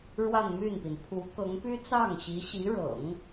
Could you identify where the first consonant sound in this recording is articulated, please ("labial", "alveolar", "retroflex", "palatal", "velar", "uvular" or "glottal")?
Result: retroflex